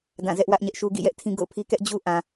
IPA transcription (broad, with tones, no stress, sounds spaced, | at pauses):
d ã˦˨ z ɛ˦ ʔ w ä˦ ʔ ɲ ɛ˦ ʔ ʃ u˦ ɡ ḭ˦˨ j ɛ˦ ʔ tʰ ĩ˦ ɡ o̰˦˨ ʊ̯ pʰ i˦ k ɛ˦ ʔ d͡ʑ u˦ ʔ ã˨